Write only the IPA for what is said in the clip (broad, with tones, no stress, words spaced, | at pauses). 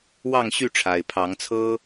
wɑ˥˨ŋɕy˥˨ʈ͡ʂʰa˨˩ɪ̯ pʰɑ˨˦ŋt͡sʰɤ˦